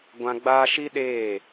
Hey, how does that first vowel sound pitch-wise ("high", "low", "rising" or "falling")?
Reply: high